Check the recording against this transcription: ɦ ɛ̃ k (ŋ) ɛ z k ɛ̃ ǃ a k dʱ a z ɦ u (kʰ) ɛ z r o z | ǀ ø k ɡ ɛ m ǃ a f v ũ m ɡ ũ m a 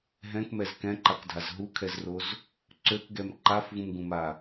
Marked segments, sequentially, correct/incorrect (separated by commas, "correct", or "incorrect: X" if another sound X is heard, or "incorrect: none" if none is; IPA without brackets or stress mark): incorrect: m, correct